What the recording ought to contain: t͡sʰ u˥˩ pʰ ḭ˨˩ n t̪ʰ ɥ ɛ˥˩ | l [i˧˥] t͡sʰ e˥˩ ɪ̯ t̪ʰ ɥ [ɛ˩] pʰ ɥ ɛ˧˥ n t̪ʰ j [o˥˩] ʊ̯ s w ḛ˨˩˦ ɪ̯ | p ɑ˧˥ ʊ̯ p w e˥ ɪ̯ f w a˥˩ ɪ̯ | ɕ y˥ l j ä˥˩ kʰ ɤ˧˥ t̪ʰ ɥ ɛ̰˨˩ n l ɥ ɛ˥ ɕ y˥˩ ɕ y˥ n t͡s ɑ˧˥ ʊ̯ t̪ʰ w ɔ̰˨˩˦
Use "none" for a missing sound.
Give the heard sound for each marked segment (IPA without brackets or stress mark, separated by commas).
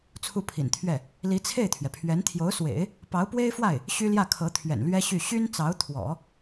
i˧˥, ɛ˩, o˧˥